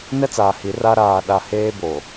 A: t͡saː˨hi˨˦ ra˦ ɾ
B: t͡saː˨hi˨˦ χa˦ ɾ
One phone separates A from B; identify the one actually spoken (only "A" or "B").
A